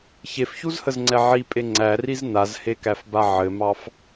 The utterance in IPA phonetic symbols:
ç e f ç u z h ə z ŋ͡ǀ ɛ ʕ i pʼ e ŋ͡ǀ æ r i z n a z h e k æ f b a ʕ ɘ m ɑ f

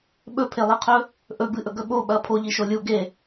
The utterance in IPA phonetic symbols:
ɓ ɵ pʰ e lˠ i qʰ ɵ | ʔ ɵ b ɨ ʔ ɵ ɡ ɵ ɓ o ɓ ɐ pʰ o ʎ i ʃ o lʲ u ɡ e

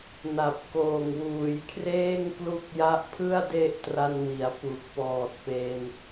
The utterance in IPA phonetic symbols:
n a˨˩ p̚ k oː˨˩ ŋ w uː˩˦ j kʰ r eː˥˩ ŋ k l u˦˥ k̚ j a˦˥ ʔ pʰ ɯ˥˩ a̯ d e˦˥ ʔ t r a˧ n w i˩˦ a̯ p u˨˩ k̚ p ɔː˨˩ t̚ p e˧ n

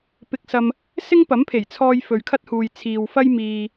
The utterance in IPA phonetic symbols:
p ɪ˧ k̚ s ɐ˧ m | s ɪ˥ ŋ p ɐ˨˥ m pʰ e˨˩ j t͡sʰ ɔː˧ j f ɵ˨ ɥ kʰ ɐ˥ t̚ h uː˨ j t͡sʰ iː˨ w f ɐ˥ j m iː˧

